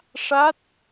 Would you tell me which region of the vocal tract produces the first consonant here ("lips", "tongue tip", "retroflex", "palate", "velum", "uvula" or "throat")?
retroflex